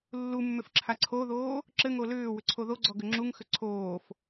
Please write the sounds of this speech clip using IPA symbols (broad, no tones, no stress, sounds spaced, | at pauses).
lː u mː ʏ f ǁʰ a ǀʰ o ð oː | ǁ ɘ ŋ o l ʏː w ʏ ǀʰ o ð o ɡ͡ǀ ɔ ɡ ʏ ŋ͡ǁ u ŋ x ʏ ǀʰ oː f